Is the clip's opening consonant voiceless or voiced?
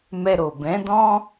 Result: voiced